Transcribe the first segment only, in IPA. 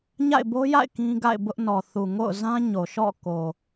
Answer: ɲ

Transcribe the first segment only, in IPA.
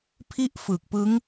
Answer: pʰ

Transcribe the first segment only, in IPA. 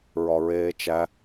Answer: ɹ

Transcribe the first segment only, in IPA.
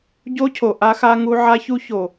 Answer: ɟ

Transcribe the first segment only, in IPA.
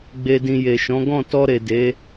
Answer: ɡ͡b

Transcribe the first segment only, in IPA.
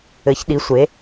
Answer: ɘ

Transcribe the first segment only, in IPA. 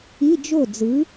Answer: i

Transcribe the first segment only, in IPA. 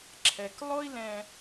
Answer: ǁʰ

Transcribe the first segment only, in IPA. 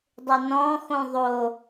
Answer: dˤ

